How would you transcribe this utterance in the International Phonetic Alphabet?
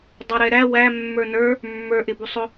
dˤ ɛ ɾ ɛ ɾ æ w æ mː ə˞ n ə˞ | mː ə˞ ʔ ɪ b u sˤ ʊ

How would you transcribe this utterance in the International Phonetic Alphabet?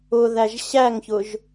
ʊ ð æ ʒ ɕ æ ŋ ç ʊ ʒ

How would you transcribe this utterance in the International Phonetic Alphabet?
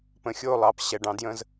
p ə̃˨ xʲ o˦˨ lˠ ɑ˨ p ɕ ɛ˨ ɖ ɑ̃˨˦ d j ə̃˦ z

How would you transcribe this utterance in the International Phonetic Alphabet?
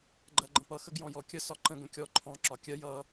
ɡ͡ǃ ɜ ɡ͡ǃ ə̃ p ʌ x ə ɡ j ɔ̃ j ɔ kʲ ə s ɒ ǃ ə̃ ɡ ə̃ kʲ ɔ ǃʰ ɔ̃ ǁ ɒ kʲ ɜ j ʌ

